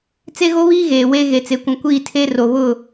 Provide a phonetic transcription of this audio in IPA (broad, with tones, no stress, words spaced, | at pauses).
t͡se˦ɣo˦βiː˦ ɣeː˨weː˦ ɣe˨t͡se˨kʷũ˨ kʷiː˦˨tʰe˦ ro˨βʊ˦˨